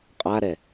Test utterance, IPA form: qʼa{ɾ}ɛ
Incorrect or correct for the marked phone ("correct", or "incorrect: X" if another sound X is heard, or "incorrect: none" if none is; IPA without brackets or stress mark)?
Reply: correct